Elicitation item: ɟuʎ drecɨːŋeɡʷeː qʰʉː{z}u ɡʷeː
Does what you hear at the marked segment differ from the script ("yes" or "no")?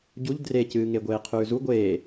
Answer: no